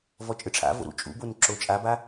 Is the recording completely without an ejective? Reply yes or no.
no